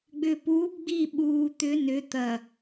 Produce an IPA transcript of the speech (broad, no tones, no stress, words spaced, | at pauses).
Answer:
ɡ͡bʏːpuːbɡ͡biː ɓuː t̪ʏ nʏ t̪ɐ